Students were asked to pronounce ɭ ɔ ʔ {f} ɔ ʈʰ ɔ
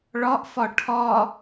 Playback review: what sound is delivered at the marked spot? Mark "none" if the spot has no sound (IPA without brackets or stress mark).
f